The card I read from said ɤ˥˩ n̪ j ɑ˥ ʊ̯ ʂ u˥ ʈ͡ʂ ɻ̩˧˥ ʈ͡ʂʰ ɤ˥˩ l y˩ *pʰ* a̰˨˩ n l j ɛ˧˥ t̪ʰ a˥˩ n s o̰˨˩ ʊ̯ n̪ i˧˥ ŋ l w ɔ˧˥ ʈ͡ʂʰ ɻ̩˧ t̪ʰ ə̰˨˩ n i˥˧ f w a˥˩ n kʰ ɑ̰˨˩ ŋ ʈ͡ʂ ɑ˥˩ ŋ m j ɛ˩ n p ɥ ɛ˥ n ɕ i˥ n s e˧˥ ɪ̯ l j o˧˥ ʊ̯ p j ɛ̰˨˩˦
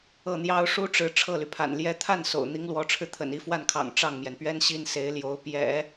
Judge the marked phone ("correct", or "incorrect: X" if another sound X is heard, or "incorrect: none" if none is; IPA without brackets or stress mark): correct